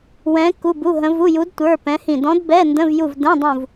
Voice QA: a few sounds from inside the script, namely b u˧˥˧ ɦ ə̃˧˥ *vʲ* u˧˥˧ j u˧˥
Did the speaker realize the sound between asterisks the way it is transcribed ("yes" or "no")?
no